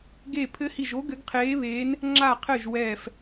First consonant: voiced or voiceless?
voiced